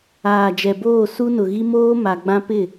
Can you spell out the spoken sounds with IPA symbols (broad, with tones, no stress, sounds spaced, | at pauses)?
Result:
aː˨ d͡ʒ ɛ˨ b oː˦˨ s u˦ n ʊ˨ ɣ i˦ m oː˦ m a˨ ɡ͡b ã˦ p ɪ˦˨